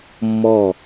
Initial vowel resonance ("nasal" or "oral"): oral